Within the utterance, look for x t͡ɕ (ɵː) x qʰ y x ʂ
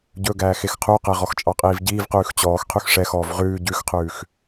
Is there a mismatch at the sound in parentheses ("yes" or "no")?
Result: yes